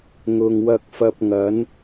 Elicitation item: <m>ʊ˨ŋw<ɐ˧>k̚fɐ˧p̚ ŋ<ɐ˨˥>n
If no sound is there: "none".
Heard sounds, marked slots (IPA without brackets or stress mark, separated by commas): ŋ, ɐ˧, ɐ˨˥